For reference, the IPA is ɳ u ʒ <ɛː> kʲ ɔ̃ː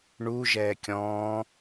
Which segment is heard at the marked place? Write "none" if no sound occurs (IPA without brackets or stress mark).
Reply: ɛː